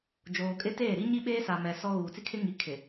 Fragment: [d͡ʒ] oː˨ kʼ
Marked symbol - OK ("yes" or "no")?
yes